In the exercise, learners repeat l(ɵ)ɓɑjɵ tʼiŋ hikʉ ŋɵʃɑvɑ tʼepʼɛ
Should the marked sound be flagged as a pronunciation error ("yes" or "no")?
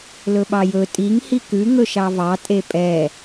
no